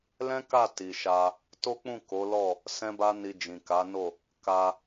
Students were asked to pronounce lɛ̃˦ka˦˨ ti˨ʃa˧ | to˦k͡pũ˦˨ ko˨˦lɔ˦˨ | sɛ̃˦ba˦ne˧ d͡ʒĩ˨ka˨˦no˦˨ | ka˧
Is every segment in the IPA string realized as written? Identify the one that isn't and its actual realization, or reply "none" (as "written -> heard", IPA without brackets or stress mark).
e˧ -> i˧